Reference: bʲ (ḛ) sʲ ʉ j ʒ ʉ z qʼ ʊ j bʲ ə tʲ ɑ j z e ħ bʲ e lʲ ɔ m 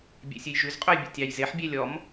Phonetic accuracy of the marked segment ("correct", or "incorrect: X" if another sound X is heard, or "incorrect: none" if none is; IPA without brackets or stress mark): correct